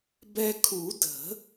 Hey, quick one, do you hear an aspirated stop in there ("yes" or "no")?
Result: yes